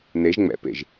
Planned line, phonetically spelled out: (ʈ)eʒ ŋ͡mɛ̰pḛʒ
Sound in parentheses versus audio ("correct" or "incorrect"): incorrect